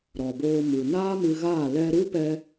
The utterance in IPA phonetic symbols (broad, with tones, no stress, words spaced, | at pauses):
ɾɔ˨boː˧mu˨ naː˦mɨ˧ɣaː˦˨ lɛ˧ ɾu˦pɛ˧